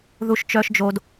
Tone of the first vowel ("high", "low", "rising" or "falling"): low